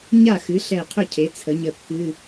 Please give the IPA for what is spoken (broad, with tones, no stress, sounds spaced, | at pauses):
ɲ a˥˩ x ɨ˩˥ ɬ ɛ˧˩ qʰ ɵ˥˩ cʰ e˩˥ t͡sʰ ə˩˥ ɲ ə˧˩ kː ɨ˧˥˧